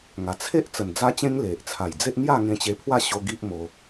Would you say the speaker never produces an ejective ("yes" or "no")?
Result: yes